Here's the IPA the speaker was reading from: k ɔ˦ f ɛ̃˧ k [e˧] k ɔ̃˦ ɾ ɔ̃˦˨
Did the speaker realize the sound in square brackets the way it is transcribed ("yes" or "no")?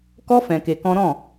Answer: yes